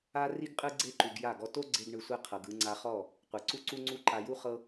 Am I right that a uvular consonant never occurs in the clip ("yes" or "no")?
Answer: no